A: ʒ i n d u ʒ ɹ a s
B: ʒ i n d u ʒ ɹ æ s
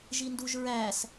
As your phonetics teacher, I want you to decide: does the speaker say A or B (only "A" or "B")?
B